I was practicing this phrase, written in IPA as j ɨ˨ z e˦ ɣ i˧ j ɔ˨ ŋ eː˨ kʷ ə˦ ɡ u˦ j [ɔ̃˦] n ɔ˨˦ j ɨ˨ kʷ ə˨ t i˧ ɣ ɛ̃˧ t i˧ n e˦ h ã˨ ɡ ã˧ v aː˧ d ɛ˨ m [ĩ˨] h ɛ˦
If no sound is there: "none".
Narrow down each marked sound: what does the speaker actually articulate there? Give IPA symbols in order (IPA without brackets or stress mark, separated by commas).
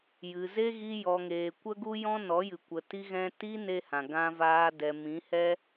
ɔ̃˦, ĩ˨˦